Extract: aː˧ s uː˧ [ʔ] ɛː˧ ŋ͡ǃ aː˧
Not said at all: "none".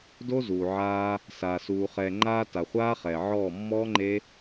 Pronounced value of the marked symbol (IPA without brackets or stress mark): χ